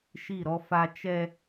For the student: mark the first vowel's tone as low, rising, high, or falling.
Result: falling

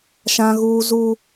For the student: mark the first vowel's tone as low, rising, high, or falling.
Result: high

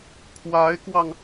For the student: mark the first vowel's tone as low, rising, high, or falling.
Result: rising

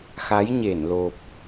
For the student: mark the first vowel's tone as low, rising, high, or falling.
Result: rising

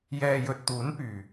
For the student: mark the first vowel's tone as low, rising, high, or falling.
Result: low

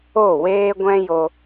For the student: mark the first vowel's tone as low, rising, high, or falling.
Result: falling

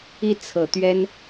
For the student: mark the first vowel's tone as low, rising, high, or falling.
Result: falling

